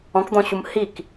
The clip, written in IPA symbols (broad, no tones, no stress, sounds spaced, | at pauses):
ɔ̃ k d̪ ɔ̃ ɕ u m h i k